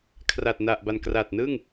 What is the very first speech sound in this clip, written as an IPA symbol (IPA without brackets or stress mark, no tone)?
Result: kʰ